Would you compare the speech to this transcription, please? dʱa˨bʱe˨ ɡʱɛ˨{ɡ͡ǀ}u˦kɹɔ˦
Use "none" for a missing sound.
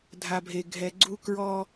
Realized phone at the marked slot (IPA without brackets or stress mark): ɡ͡ǀ